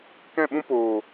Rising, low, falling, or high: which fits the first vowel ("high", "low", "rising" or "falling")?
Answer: falling